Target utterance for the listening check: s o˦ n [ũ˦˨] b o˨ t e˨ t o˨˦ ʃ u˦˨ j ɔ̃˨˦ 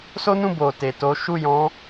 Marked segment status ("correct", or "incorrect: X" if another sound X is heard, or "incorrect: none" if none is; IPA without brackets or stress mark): correct